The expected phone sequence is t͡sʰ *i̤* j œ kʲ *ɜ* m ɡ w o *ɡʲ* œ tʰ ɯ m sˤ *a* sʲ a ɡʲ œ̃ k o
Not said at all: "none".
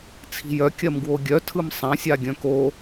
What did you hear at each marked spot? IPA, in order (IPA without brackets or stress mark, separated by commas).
i̤, ɜ, ɡʲ, ã